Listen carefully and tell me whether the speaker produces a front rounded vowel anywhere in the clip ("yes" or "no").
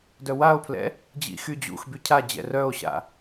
yes